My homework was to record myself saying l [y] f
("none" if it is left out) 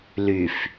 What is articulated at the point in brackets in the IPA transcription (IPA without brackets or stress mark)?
y